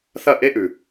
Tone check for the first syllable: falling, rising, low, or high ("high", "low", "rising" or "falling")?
falling